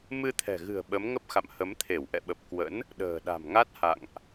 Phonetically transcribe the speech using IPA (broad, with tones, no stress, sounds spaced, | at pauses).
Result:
m ɨ˧ t̪ʰ ɛ̤˨˩ ɣ ɨ̤˨˩ ə̯ ɓ ə˨˦ m ŋ ə˦˥ p̚ x a̰˧˨ m h ə˨˦ m t̪ʰ e˧˩ w ʔ ɛ̰˧˨ ɓ ə˨˩ p̚ k w ə̰˧˥ n | ɗ ə̤ː˨˩ ɗ a̤˨˩ m ŋ a˦˥ t̚ h a̰˧˨ ŋ ʔ